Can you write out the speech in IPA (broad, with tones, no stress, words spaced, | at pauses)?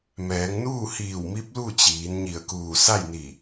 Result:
mɛː˩˧ŋnuː˥˨hiː˧˩w mi˧˥p̚lu˥˨t͡ɕiː˩˧n ɲi˧˩ə̯kuː˧˩ sa˥˨jni˧˩